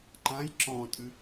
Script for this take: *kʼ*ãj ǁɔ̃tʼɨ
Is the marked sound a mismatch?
yes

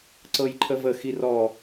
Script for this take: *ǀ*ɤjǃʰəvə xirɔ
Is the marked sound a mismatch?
no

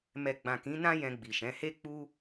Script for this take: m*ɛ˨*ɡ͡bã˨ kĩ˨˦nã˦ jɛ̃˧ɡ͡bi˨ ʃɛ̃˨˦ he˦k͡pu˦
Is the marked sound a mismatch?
no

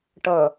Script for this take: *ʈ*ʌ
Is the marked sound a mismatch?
no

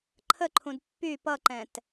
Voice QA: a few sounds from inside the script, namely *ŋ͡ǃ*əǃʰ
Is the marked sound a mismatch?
yes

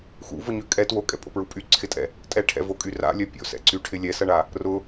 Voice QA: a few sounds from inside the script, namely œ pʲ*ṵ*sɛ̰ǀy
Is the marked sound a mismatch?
yes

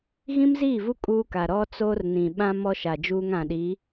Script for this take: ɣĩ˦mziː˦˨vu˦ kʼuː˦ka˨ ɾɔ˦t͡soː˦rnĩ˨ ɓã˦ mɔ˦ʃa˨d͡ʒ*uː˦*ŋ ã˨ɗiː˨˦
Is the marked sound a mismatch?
no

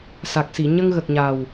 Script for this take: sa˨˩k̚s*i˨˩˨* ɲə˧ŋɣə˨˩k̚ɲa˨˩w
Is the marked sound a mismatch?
no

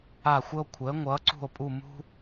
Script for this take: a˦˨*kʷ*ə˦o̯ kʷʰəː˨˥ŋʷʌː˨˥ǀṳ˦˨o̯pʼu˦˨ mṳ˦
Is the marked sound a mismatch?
yes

